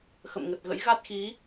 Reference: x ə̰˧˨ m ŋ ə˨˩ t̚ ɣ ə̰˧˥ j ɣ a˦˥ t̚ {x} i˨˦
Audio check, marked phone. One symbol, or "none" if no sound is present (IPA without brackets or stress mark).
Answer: x